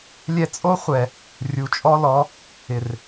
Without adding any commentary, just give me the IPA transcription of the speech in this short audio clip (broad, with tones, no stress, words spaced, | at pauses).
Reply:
lʲɛ˧t͡sʼo˦ χʷɛ˨ | rʲu˨t͡ʃʼɔ˦lɔ˨˦ | ɪ˨r